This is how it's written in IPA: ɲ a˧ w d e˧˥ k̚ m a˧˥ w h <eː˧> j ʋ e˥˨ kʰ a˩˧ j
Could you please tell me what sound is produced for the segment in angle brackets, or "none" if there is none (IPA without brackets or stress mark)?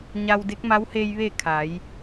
eː˧